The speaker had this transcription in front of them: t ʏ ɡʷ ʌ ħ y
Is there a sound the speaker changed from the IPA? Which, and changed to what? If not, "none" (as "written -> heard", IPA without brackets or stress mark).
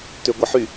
none